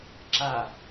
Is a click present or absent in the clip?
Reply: present